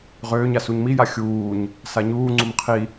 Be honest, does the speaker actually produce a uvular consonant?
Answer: yes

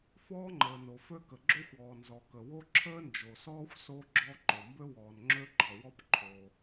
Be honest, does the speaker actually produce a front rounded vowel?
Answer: yes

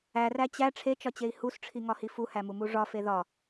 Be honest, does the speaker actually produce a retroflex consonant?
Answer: yes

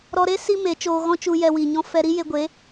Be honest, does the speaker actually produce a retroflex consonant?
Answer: no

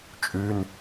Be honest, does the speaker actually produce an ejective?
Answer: yes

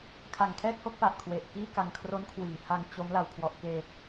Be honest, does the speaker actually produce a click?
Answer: no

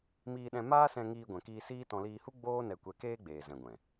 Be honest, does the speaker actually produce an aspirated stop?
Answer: no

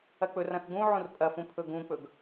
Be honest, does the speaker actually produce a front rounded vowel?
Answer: no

